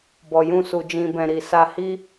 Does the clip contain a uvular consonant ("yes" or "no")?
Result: no